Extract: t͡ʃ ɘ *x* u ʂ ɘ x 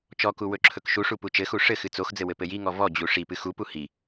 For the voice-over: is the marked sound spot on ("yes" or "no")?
yes